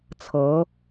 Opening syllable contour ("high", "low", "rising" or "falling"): rising